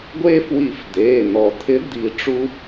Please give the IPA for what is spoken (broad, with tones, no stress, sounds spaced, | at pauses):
ɡʷ e˧ f w i˨˩˦ f d̪ eː˩˧˩ n̪ ɔ˨˩˦ t̪ʰ ɪ˧˥ d̪ i˨˩˦ ʈ͡ʂ u˧